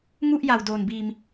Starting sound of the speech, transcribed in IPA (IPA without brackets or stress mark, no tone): ŋ